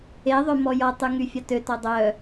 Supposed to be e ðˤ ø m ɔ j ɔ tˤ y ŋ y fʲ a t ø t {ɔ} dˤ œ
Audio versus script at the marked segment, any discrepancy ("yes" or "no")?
no